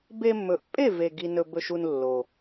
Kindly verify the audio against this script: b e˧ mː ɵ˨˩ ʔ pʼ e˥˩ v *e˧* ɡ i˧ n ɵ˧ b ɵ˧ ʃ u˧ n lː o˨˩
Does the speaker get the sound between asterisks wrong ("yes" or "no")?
yes